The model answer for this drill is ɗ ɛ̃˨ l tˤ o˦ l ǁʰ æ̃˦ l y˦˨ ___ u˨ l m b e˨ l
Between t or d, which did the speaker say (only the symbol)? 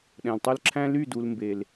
d